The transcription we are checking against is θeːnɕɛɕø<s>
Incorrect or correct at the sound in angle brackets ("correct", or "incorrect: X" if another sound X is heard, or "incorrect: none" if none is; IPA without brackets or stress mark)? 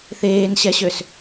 correct